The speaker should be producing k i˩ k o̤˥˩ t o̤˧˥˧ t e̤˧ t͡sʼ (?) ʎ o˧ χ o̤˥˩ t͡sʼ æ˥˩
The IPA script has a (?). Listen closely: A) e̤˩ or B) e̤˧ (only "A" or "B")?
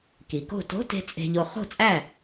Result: B